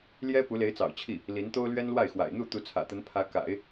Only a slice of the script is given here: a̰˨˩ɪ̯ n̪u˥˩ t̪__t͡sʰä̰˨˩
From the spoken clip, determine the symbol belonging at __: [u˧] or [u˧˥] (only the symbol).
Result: u˧˥